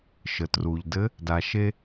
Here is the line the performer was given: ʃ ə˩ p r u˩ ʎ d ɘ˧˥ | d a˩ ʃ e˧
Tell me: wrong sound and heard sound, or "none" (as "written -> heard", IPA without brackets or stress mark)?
p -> t